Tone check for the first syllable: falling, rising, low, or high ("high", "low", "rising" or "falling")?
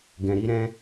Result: low